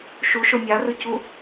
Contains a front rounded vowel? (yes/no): no